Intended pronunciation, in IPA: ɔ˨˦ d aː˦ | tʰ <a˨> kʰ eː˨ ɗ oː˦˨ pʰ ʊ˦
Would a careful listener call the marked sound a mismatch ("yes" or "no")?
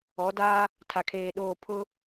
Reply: no